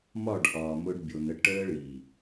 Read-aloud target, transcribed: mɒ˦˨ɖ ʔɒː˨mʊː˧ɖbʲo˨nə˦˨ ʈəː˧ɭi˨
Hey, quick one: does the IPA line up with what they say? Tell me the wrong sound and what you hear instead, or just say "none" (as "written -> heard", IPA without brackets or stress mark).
none